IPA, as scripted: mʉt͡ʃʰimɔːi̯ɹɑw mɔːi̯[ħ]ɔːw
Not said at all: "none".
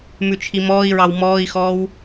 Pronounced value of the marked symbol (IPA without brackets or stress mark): x